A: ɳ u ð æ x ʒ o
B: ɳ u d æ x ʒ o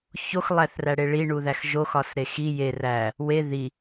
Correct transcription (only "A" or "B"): A